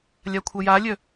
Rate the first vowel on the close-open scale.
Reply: open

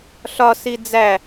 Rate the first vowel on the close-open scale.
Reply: open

